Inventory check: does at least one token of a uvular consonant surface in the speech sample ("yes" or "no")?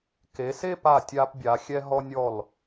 no